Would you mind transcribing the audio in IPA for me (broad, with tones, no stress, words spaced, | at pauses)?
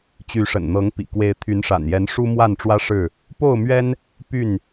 t͡ɕy˨˦ʂə̰˨˩nn̪ɤ˨˦ŋpḭ˨˩ kwe˨˦ɪ̯t̪ʰy˨˦nʂa̰˨˩njɛ˨˦n ʂu˦mwa˥˨nʈ͡ʂwä˦ʂɻ̩˥˨ | po˥˨ʊ̯mɥɛ˦n | py˥˨n